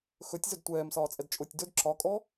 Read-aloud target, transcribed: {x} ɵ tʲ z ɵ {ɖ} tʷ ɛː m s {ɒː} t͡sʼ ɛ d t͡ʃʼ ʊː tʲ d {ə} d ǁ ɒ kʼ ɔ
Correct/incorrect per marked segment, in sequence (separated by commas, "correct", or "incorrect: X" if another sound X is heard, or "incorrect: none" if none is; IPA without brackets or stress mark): correct, incorrect: d, correct, incorrect: ɵ